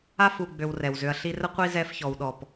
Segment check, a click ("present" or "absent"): absent